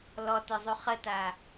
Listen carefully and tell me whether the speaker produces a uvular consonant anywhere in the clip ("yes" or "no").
yes